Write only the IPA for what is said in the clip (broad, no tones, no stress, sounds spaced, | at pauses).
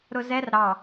ɾ ʊ z ɛ r ɾ ɑ